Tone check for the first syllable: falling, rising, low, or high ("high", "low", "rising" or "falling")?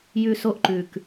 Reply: high